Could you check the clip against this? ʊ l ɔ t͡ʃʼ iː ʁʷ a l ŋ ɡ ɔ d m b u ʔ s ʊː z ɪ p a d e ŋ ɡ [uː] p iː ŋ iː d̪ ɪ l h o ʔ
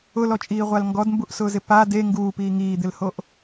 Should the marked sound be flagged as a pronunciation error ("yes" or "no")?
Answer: no